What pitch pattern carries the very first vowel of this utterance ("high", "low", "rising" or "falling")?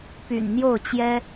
low